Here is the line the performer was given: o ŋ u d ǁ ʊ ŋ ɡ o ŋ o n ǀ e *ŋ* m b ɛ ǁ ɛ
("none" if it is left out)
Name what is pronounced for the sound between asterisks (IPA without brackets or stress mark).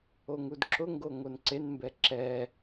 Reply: n